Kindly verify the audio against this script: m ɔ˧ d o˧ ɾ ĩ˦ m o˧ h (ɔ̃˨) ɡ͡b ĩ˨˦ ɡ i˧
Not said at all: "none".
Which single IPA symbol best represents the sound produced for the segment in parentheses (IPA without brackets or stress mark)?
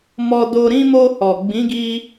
ɔ˨